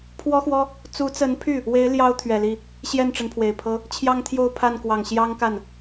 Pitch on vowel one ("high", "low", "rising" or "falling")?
high